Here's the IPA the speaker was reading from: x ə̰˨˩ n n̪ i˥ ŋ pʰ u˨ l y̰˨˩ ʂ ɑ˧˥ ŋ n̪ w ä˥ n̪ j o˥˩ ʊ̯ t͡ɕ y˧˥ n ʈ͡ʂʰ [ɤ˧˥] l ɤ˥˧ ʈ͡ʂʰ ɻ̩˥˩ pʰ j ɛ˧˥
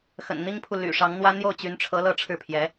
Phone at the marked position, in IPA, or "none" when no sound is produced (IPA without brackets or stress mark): ɤ˧˥